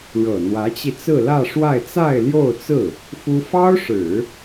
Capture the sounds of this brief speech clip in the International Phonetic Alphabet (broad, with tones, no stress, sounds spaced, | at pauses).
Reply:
ɻ ɤ˨˩ n̪ w ä˧˥ t͡ɕ i˧ t͡s ɹ̩˥˧ l ä˥˧ ʂ w a˥˧ ɪ̯ t͡s a˥˧ ɪ̯ l j o˥˧ ʊ̯ t͡s ɹ̩˥˩ | f u˥ f ɑ˥ ʊ̯ ʂ ɻ̩˨˩˦